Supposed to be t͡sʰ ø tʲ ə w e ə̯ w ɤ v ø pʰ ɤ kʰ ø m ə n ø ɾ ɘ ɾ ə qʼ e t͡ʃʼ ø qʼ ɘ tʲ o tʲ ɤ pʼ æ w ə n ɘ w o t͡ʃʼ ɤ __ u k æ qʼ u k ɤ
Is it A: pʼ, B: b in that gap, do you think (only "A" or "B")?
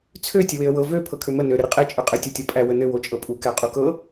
A